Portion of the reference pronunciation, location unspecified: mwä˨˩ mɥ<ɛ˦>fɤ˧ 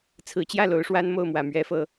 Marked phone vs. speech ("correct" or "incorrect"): incorrect